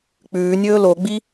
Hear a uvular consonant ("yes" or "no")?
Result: no